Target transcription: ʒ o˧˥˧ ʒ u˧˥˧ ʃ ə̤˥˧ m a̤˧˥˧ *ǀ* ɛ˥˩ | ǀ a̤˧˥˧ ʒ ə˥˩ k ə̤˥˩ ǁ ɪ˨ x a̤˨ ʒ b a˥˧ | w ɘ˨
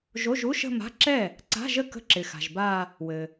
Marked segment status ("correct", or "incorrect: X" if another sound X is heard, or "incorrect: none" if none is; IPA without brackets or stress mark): incorrect: ǁ